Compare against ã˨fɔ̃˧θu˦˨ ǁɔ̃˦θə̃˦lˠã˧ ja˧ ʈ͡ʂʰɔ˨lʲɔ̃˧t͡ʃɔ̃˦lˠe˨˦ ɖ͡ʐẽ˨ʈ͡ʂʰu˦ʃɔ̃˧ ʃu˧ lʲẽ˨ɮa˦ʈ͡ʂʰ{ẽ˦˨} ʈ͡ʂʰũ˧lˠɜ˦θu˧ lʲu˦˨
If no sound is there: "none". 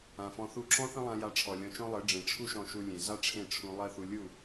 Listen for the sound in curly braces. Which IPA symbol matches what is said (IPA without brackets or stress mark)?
ẽ˦˨